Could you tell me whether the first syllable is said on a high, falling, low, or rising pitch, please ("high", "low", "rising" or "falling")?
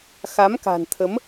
rising